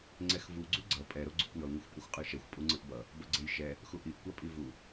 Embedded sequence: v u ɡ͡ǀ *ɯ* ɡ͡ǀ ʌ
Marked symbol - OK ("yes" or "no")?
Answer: no